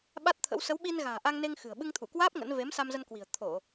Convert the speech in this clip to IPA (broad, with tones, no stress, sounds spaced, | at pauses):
ɓ a˦˥ t̚ t̪ʰ ə̰˧˥ w s ə˨˦ w ɓ i˧ n ɣ a̤ː˨˩ ʔ a˧ ŋ n e˧ ŋ x ɨ̤˨˩ ə̯ ɓ ɨ˧ ŋ t̪ʰ u˧˩ k w aː˦˥ p̚ ŋ ə̰˧˥ n v e˨˦ m s a˧ m z ə˧ n k w i̤˨˩ ə̯ t̪ʰ o˧˩˨